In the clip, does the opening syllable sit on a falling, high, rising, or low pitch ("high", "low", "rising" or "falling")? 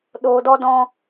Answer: low